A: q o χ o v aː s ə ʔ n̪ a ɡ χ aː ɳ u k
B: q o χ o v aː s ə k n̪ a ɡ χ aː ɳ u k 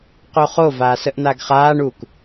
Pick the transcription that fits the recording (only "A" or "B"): A